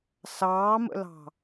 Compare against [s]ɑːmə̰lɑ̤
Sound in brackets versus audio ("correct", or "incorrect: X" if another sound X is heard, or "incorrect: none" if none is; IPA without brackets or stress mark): correct